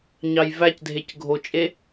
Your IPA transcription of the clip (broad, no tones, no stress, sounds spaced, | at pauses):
ɲ ɑ j v æ c dʱ e c ɡʱ o t͡ʃʼ e